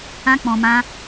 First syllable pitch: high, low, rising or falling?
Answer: high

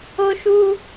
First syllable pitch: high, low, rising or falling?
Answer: high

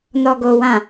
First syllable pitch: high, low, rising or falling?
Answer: low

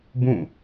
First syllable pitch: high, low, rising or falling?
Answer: falling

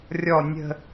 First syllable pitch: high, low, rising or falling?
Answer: low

